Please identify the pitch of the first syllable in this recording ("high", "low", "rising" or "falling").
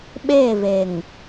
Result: falling